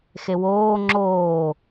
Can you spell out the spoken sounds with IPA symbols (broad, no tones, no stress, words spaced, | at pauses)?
xewoː ŋ͡ǁoː